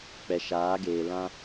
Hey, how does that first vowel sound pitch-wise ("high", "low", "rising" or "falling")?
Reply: low